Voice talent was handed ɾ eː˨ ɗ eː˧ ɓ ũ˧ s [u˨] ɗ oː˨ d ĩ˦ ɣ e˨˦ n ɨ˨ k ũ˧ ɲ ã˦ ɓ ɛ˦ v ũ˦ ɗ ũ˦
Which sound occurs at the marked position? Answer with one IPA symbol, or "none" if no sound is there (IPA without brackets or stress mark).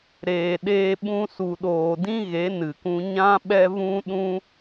u˨